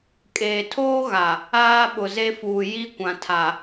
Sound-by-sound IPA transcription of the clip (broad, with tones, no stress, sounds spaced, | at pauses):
kʼ eː˨ tʰ oː˦ ɣ a˨ | aː˦ ɓ ʊ˨ z e˦ f uː˨ j i˦ kʷ ã˨ tʰ a˨